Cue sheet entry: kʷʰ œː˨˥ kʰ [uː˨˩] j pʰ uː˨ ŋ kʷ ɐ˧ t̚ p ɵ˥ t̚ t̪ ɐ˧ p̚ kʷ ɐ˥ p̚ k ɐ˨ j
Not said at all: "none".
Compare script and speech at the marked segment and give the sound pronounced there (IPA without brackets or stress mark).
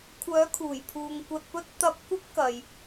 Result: uː˨˩